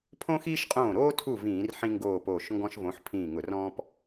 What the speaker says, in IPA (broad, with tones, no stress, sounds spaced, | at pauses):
pʰ õ˦ x iː˦ ʃ qʼ õː˧˩ ɾ oː˦ tʰ u˧˩ v ĩː˧˩˧ r ħ ĩ˦ ŋ ɡ oː˧˩ p oː˧˩ ʃ ŋ ɡ ɔ̃˦ ʃ v õ˨˥ ħ pʰ ĩː˧˩ ŋ ʊ˧˩˧ r ɔ̃ː˦ p